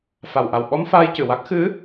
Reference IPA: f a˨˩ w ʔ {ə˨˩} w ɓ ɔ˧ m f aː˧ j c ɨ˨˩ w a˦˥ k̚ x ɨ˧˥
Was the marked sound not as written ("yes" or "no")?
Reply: yes